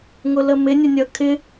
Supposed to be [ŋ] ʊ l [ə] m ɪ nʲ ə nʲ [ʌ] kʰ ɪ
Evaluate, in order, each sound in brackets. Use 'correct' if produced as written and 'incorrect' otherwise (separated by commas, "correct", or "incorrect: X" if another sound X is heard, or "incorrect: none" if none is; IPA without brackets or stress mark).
correct, correct, correct